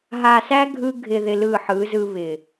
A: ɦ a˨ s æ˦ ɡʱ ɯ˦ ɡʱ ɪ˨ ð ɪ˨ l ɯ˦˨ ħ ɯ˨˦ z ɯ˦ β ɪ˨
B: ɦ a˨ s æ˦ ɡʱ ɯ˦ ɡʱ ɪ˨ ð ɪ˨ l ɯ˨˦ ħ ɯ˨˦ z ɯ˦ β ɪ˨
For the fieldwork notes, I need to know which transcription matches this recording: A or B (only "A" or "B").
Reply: A